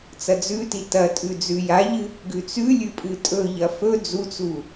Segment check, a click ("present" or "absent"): absent